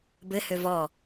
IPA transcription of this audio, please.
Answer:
b ɘ h ø v ɔ

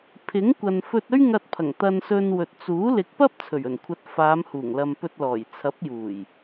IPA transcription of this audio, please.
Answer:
pʰ ɪ˨˥ ŋ kʷ ɐ˨ n f ɵ˧ t̚ ɵ˥ ɥ ŋ ɐ˧ t̚ pʰ ɐ˨˩ ŋ t̪ ɐ˧ n s ɵ˧ n w ɵ˨ t̚ t͡s uː˨˥ l ɪ˨˥ k̚ p ɐ˥ p̚ t͡sʰ ɵ˨˩ ɥ ɵ˨˩ n kʷʰ ɐ˨˥ t̚ f aː˨˧ m h uː˨˩ ŋ l ɐ˨ m p ɵ˧ t̚ l ɔː˨˩ j t͡sʰ ɐ˨˥ p̚ j uː˨˩ j

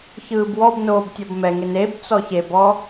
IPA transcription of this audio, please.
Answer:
ç ɯː b w ɔ b n oː b tʲ ɔ b m ɛ ŋ e n e b t͡s ɔ ç e b ɔ

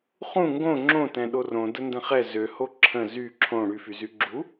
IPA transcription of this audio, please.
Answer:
χ ũ ŋ ɡ õ ŋ͡ǁ õ t ɛ̃ ɗ o r õ d ə n d ə̃ χ ɛ z ø h o ǁʰ ə̃ z y ǁʰ õ ɽ y f y z y ɡ͡ǁ u

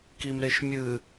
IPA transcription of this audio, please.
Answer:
k i m ɾ e ʃ mʲ ɨ

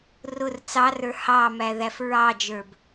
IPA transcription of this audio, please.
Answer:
r ʊ r t͡s ɑ r ə˞ h ɑ m æ ð æ f ɹ ɑ d͡ʒ ə˞ b

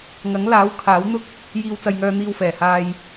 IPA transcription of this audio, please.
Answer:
ŋ ɐ˨˥ ŋ l aː˨˥ w kʰ aː˨˥ w n̪ ʊ˥ k̚ | j iː˧ w t͡s ɐ˧ j ŋ œː˧ n̪ iː˧ w f ɛː˨˩ h aː˧ j

